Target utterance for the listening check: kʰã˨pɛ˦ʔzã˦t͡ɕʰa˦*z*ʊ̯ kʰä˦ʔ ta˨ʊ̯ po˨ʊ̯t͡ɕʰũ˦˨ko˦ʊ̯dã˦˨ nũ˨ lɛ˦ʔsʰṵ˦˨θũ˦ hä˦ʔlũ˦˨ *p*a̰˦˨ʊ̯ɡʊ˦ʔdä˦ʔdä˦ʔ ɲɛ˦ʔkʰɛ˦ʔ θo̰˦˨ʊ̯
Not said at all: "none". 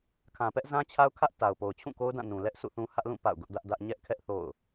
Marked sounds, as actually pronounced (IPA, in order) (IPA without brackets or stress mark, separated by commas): none, p